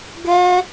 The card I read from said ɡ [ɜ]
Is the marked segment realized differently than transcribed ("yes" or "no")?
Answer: yes